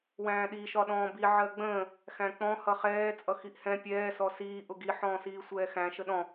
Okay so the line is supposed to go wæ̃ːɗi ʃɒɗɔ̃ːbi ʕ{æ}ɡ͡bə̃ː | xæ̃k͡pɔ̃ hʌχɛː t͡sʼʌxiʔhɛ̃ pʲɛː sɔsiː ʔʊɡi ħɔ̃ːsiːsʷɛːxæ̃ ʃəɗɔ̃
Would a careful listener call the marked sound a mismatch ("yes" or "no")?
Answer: yes